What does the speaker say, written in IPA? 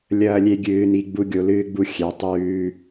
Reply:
lʲ ɐː˧ lʲ e˧ ɡʲ ɨː˩˧ n i˩˧ ɡ͡b u˧ ɡʲ o˩˧ l ɨː˧ ɡ͡b u˧ xʲ e˩˧ tˤ ʉː˧

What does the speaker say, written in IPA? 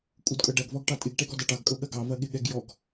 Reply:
kʼ u d kʼ ɤ ɖ ɐ ɡ v ɔ ɡ ʈ ɑ tʼ ɪ ɡ ʈ ɛ ɡ ɔ d ɐ ʈ ɑ ɡ kʼ ɤ ɠ ɐ ɡ ɑ v ɐ ɠ ɪ ɠ ɛ ɡ j ɔ ɡ

